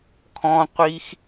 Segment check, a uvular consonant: present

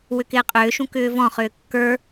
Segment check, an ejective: present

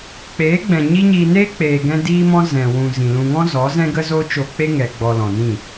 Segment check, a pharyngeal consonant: absent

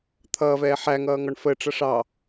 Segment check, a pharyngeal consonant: present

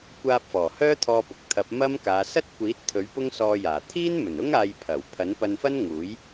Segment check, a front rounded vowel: present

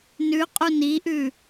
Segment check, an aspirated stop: absent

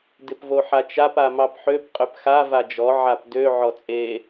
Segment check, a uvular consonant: present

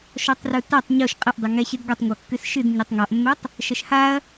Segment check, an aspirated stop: absent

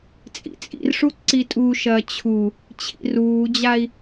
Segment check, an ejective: present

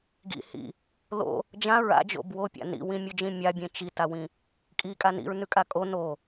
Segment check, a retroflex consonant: absent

